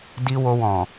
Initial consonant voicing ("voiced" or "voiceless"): voiced